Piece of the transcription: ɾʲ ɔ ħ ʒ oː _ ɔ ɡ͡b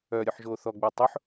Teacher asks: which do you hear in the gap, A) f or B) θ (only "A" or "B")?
B